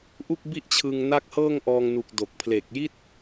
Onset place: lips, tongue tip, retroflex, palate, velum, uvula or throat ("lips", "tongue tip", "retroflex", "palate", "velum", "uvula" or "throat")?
throat